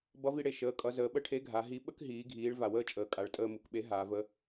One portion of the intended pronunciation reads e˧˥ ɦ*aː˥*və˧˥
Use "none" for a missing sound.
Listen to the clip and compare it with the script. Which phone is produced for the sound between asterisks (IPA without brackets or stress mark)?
aː˩˧